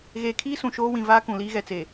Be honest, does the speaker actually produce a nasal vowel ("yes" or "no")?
yes